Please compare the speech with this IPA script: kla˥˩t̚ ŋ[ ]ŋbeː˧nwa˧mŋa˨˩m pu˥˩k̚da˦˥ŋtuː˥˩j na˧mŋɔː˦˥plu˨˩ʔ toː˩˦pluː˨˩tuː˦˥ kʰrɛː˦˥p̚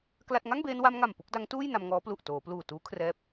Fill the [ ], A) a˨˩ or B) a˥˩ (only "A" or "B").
B